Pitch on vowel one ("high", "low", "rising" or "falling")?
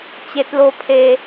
high